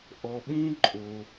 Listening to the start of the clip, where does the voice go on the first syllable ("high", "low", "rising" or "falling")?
low